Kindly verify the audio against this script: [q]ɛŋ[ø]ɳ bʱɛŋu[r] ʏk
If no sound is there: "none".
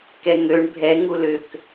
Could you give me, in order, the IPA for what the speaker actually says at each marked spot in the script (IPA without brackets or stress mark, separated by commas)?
k, ø, l